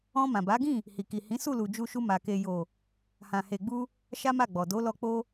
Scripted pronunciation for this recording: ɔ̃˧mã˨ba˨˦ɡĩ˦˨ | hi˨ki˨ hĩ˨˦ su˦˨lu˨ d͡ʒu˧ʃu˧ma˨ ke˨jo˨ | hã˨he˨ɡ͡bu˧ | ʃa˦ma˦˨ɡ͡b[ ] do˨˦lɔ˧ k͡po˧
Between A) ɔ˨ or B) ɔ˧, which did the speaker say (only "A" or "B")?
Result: A